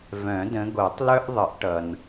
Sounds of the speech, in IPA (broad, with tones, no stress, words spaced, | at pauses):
vœ̃˨˩˦də̃˨˦ɡo˨˩˦tˤ lœ˥ʔ ðˤə˨˩˦ʔ ʈʌ˨n